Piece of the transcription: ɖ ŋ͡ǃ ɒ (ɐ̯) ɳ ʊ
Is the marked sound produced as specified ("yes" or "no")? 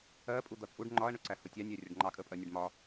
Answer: yes